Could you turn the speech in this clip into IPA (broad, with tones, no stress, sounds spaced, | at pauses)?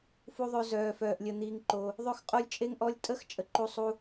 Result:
f u˥ ðˤ ø˥ z œː˥ f œː˥ ʔ lʲ ə˥ n̪ iː˥ ŋ ǃ o˥ | ðˤ ø˥ x qʼ o˥ lʲ t͡ʃʼ e˥ ŋ ʔ ɔ˥ lʲ tʼ ə˥ x t͡ʃʼ ə˥ ǃ u˥ sˤ u˥